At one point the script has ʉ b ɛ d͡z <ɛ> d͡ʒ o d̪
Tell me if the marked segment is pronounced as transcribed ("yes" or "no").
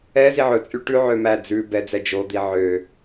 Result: yes